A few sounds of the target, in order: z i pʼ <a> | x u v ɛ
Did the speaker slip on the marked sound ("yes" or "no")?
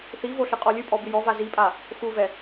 no